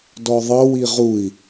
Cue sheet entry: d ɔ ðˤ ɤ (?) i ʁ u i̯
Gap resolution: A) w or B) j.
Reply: A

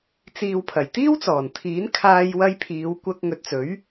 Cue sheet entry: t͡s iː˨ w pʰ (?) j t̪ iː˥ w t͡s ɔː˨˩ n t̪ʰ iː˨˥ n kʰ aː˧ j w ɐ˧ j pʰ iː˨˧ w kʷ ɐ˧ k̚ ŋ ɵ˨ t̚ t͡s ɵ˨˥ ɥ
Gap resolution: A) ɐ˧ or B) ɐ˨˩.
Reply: B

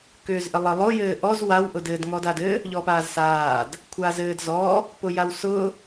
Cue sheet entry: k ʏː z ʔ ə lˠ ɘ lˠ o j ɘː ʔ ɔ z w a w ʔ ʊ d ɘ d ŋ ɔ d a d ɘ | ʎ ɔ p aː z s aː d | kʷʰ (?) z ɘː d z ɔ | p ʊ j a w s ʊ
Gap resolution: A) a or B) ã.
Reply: A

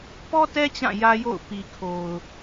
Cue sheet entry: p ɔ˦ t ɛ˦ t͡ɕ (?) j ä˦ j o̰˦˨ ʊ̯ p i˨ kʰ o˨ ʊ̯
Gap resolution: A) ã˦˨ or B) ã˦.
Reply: A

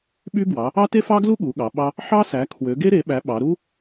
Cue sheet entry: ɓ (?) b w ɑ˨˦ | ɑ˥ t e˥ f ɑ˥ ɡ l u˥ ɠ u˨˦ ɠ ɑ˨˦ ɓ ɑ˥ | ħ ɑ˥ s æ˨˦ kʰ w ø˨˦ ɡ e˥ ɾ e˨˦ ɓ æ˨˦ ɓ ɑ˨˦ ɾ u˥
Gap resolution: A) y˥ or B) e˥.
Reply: A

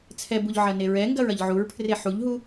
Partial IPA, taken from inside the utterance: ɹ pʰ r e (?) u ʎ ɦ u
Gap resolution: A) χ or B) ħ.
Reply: B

